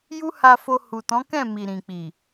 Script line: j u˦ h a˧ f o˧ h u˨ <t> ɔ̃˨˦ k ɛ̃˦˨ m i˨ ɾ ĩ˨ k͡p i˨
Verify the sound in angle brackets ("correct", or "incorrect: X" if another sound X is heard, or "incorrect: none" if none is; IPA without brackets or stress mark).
correct